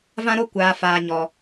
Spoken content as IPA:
v ã˦ ɾ o˦ kʷ aː˨ f aː˨ ɲ ɔ˨

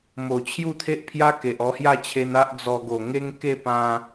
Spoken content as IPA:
m o˨˩ t͡ɕʰ j u˥˧ t̪ʰ e˦ ʔ pʰ j a˦ k e˨ ʔ ɔ˧ h j a˥˧ t͡ɕʰ e˧ n a˦ ʔ d͡z ɔ˧ ɡ o˨˩ ŋ e˦ ŋ k e˥˧ p ã˧

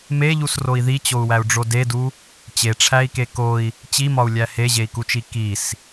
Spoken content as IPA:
m e ʎ u s r o i̯ ð i t͡ɕ o u̯ w æ u̯ ɖ͡ʐ o d e d u | t͡ɕ e ʈ͡ʂʰ æ i̯ k e k o i̯ | t͡ɕ i m ɒ u̯ lʲ æ h e ʑ e i̯ k u t͡ʃ i k i s

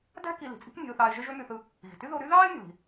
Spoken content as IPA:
d æ̤˥ k i˧ l i̤˩ t͡sʼ i̤˥ k nʲ e̤˧ ʊ̯ θ ɑː˧ ɪ̯ ʒ e˥ ʒ ø˥ m y˧ θ ɯ˧ | ɣ i̤˩ t y˥ ð o˧ ɾ y˥ ð ɑː˥ ɪ̯ nʲ ṳ˩ l i̤˩

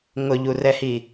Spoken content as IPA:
ŋ ʊ ʎ u r ɛ h i

